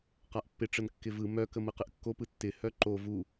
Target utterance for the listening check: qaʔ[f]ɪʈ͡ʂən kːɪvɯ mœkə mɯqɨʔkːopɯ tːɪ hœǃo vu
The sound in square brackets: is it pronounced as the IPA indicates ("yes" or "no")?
no